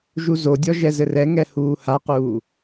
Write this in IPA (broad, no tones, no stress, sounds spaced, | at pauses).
ʒ u z o dʲ ɔ ʒ ɛ z ɘ r ɛ ŋ ɛ h uː h a q uː